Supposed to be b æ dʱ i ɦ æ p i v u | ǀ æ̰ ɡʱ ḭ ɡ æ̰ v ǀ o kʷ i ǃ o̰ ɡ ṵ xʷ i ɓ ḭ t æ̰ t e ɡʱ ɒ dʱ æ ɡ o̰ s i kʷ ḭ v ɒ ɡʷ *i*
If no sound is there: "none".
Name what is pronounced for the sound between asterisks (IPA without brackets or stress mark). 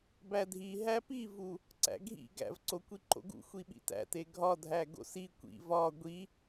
i